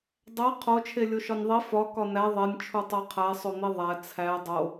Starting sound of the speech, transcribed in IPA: dˤ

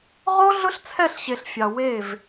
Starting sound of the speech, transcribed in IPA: ʁ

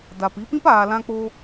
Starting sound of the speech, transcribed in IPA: d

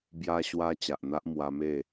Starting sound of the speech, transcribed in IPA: b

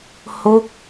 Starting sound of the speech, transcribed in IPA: h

